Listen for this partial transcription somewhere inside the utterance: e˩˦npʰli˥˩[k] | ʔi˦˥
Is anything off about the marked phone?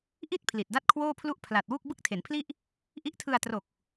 yes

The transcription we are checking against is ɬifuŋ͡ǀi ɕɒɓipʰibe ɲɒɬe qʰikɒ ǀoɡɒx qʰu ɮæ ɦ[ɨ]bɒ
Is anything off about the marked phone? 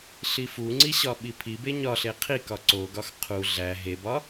yes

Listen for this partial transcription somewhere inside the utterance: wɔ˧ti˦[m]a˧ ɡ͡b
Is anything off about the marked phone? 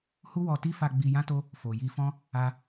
yes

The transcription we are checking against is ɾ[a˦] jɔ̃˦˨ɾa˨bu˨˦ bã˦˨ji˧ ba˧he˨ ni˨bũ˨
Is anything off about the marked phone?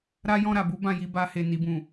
no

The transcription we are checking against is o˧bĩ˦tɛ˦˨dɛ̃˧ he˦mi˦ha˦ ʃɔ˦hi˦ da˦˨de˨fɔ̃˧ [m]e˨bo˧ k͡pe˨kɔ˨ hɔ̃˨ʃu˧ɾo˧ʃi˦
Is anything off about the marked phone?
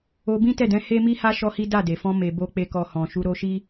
no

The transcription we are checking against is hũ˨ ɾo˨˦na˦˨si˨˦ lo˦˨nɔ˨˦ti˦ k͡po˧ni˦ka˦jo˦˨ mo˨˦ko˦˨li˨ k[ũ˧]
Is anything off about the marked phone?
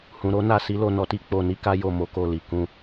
no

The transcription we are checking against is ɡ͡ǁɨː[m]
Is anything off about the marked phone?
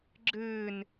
yes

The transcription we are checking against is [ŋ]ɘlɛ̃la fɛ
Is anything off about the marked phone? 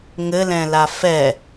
no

